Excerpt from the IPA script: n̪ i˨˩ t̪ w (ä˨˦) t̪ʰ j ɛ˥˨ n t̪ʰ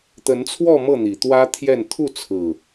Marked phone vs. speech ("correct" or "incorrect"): incorrect